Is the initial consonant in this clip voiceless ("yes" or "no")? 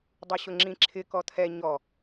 no